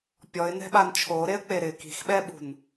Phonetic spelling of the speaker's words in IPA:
pʲɔɪ̯nɛ̤ɓan t͡ʃʰoɾeə̯k͡pe ɾɪ ki̤xɓɛɓṳn

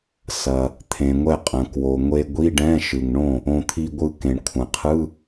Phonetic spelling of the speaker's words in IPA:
sɐ˩ | t̪ʰẽ˩ŋʷɛ˥˩qʼɐ̃˩ kwo˩ŋʷe˧ ɡʷi˧˥˧ɖɛ̃˧˥˧ʃɯ˩ŋɳõ˥˩ | õ˧t̪ʰi˧ɡʷɯ˧ kẽ˩ɳkʷʰɐ̃˩qʰɯ˧˥˧

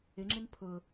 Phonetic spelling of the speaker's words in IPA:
ɪŋ͡ǁɪn pʰʊ

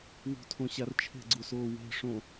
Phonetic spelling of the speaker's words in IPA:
wṳtʰõɕar t͡ʃʰe̤ɡ͡ǀusoː we̤ʂõ

